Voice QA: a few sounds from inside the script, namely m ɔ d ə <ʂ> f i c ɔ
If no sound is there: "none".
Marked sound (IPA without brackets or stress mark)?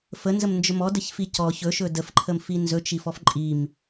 ç